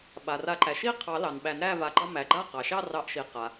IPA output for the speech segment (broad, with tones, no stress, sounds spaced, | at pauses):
ɓ a˩ r a˨˩˦ ǃ æ˩ ʃ i˥˧ qʰ ɑ˨˩˦ l ɑ˩ n ɓ æ˨˩˦ n ɾ æ˥˧ v a˨˩˦ ɡ͡ǃ ɑ˥˧ m æ˩ ɡ͡ǃ a˥˧ q ɑ˩ ʃ ɑ˥˧ r ɑ˨˩˦ ʔ ʃ i˩ q a˩